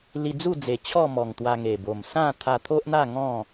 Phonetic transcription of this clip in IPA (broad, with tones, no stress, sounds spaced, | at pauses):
l i˧ d͡z u˥˧ d͡z e˨˩ t͡ɕʰ ɔ˥˧ m ɔ˨˩ ŋ t̪ w a˧ ŋ e˨˩ b o˨˩ m s ã˥˧ t̪ʰ a˧ t̪ʰ o˦ ʔ n̪ a˥˧ ŋ ɔ̃˥˧